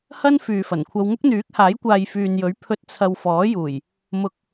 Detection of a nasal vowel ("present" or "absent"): absent